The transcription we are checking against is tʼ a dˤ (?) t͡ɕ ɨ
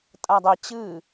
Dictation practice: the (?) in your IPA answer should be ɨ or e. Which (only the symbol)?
e